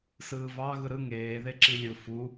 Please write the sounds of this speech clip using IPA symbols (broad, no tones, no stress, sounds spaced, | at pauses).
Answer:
s ɯː v ɑ ɣ ɯ ɾ ɯ ŋ eː ð e ǁ i lʲ ɯ f u